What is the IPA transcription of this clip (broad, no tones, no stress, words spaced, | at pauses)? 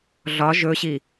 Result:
ɮɒ ʒɵɕi